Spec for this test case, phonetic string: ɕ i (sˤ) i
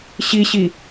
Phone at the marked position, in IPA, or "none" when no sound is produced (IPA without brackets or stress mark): ɕ